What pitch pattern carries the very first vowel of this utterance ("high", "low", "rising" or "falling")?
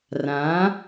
rising